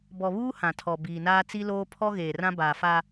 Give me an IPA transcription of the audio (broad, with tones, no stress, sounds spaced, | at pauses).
b ɔ˨ β uː˦ h ã˨ tʰ ɔ˨ b iː˨ n aː˦ t͡s i˦ l oː˦ pʰ ɔ˦ ɣ eː˨ r ã˦ b aː˨ f a˦